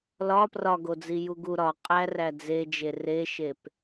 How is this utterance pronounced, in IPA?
l ɒ p r ɒ ɡ o d͡z i j u ɡ u ɾ ɒ qʼ æ r æ d͡z e d͡ʒ e r e ʃ e p

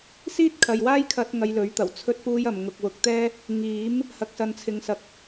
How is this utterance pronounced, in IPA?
s iː˥ t̚ kʰ ɐ˨ j w aː˥ j kʰ ɐ˧ t̚ ŋ ɐ˧ j l ɵ˨˥ ɥ t̪ ɐ˨˩ w t͡sʰ ɵ˥ t̚ p uː˥ j ɐ˨ m ŋ ʊ˨ k̚ w ʊ˨˥ k̚ t̪ ɛː˥ | ŋ iː˨˥ m | h ɐ˨ k̚ s ɐ˨ n t͡sʰ ɪ˨ ŋ s ɐ˨ k̚

